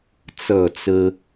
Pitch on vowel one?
falling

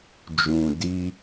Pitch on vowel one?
low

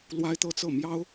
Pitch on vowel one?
high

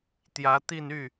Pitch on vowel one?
rising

